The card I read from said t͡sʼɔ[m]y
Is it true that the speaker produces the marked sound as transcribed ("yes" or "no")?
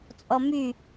yes